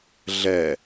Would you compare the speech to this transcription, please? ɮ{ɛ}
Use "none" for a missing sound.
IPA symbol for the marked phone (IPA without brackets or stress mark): ɛ